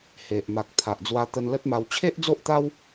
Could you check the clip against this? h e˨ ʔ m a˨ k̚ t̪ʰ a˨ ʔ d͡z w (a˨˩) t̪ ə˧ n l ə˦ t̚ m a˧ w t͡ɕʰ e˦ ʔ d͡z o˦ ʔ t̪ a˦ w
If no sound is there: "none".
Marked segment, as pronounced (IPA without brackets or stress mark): a˧